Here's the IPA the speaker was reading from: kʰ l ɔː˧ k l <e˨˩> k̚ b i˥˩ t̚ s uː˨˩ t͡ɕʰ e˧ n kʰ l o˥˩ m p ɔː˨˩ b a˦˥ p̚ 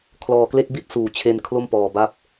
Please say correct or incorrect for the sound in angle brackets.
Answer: incorrect